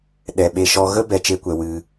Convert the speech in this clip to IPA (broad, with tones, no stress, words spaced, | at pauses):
ɗɛ˨ ɓe˧ ʃɔ˧ ɣə˦bɛ˨ t͡ʃe˦kʷɛ˧ wɨ˧